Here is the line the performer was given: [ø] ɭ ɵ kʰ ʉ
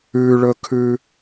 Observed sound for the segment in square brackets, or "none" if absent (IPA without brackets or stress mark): ʉ